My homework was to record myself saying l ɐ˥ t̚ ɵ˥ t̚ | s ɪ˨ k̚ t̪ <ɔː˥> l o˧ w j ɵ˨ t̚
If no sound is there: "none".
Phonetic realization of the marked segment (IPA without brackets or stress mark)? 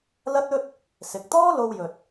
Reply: ɔː˥